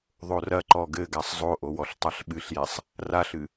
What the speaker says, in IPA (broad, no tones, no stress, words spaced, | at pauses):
ðˤorɐǃɔ ɡɘɡasˤ zˤoʔowɔɬ tˤaɬɓɨɬjɛsˤ | raɬɨ